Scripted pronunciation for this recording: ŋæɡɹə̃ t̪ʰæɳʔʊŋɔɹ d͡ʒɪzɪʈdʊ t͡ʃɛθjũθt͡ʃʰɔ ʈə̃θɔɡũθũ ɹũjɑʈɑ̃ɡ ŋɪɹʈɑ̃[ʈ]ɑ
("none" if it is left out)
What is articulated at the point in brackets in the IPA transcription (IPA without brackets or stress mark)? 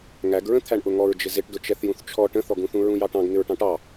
ʈ